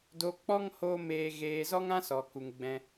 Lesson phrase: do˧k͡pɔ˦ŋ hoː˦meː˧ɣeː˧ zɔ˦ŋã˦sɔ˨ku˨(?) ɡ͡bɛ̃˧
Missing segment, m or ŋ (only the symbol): ŋ